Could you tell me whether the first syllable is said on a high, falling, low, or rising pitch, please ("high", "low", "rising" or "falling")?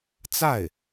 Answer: falling